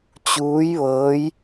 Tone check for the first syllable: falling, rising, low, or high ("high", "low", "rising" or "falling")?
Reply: rising